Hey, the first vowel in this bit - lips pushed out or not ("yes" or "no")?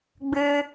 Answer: no